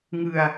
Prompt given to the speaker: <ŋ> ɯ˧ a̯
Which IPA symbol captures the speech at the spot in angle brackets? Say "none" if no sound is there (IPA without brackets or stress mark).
ŋ